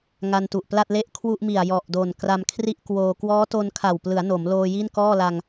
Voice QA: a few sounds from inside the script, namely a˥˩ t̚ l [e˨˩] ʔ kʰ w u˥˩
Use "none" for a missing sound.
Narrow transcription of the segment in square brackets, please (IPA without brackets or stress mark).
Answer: e˥˩